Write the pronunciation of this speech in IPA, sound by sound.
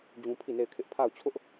d͡ʑ ũ˦ pʰ i˦˨ n e˦˨ ɪ̯ kʰ ɪ˦ ʔ pʰ a˦˨ ʊ̯ t͡ɕʰ ʊ˦ ʔ

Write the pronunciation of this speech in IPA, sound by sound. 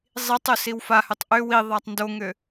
zˤ i tˤ ʏ s i w f a h ʏ tˤ ʔ ʏ w i ðˤ a tˤ n d o ŋ ʏ

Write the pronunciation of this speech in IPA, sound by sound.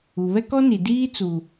u˨ β ɛ˦ k ɔ˦ n i˨ d iː˦ t͡s u˨

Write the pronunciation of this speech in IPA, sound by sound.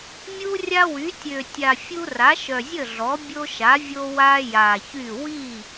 mʲ u˦ rʲ a˦ w y˩˥ tʲ ø˨˩ tʲ a˨˩ fʲ u˦ r a˩˥ ʃ œ˨˩ zʲ ə˥˩ ɮ ɔ˩˥ bʲ o˦ ʃ a˩˥ vʲ o˦ w a˦ j a˨˩ ç y˥˩ w i˥˩

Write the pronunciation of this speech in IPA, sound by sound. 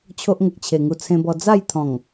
t͡ɕʰ o˦ ʔ ŋ ə˨ k̚ t͡ɕʰ e˨˩ ŋ u˧ t͡sʰ ẽ˧ b ɔ˧ d͡z a˥˧ j t̪ʰ ɔ̃˨˩ ŋ

